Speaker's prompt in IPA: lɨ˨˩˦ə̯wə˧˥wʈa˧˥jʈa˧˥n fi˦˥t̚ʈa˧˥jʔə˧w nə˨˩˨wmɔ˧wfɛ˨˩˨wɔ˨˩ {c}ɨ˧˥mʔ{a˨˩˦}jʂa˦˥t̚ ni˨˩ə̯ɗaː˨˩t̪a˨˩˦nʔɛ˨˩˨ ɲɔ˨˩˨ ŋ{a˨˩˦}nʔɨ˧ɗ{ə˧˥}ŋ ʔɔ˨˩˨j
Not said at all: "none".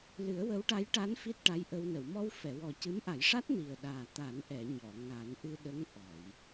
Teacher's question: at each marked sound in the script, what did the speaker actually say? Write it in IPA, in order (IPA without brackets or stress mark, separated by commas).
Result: c, a˨˩˦, a˨˩˦, ə˧˥